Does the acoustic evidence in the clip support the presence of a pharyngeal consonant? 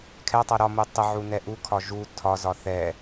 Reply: yes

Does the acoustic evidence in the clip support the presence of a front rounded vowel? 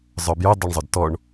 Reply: yes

